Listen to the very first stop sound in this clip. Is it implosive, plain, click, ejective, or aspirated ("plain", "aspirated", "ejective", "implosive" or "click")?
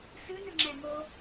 click